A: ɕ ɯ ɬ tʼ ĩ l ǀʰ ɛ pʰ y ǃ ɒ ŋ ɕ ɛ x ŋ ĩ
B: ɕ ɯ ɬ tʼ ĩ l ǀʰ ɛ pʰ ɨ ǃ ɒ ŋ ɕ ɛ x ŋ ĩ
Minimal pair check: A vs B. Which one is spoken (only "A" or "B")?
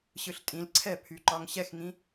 A